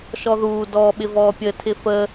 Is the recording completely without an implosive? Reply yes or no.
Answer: no